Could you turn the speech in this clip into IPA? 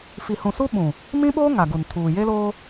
fi˨hũ˨su˦ ɓũ˨ | mĩ˦ɓoː˦ ŋa˨ɡu˨ntʰuː˨ je˦loː˦

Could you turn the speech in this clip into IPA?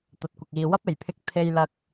t̪ɐ˨˥t̚kʷɐ˨k̚iː˨ wɐ˥p̚e˨˩jpʰɪ˧k̚ t̪ʰe˧jlɐ˧k̚

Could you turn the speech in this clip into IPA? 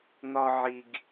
n̪ɒ˨ ʕi˨ɡ

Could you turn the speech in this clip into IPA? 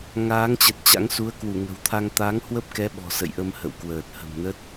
ŋaː˨˦ŋt͡ɕə˨˩t̚ t͡ɕa̰˧˥ŋ su˨˦ə̯ kwu˧˩ŋə̤˨˩wt̪ʰa˧ŋ t̪aː˨˦ŋhwə˦˥p̚kɛ˨˦ ɓɔ̤˨˩sə̰˧˨jʔə˧m hə̰˧˨wkwəː˨˩t̚ hə̤˨˩mnə˦˥t̚

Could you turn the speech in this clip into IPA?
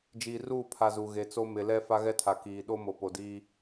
d͡ʒiː˨ruː˦˨pʰa˨ zu˨ɣe˨t͡so˦ mɪ˨lɛ˦ fa˦ɣɛ˦tʰa˨ kiː˨ ɗo˦mo˨po˨diː˦

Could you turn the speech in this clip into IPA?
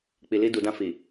k͡pi˨li˧du˨dã˧ fi˨

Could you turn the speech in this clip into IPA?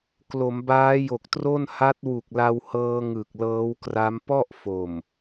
klo˩˦mbaː˦˥jo˨˩k̚tro˥˩n ha˦˥t̚wu˨˩k̚la˧whɤː˧ ŋɯ˨˩k̚lɤː˦˥wkra˦˥m pɔ˥˩ʔ fo˨˩m

